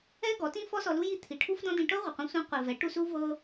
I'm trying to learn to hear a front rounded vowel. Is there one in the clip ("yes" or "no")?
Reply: no